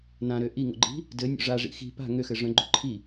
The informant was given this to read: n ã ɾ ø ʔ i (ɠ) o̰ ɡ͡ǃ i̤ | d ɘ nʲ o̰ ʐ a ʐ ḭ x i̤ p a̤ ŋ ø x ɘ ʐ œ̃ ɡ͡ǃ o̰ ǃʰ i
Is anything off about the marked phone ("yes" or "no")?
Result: yes